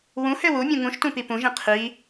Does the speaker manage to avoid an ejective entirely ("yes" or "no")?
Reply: yes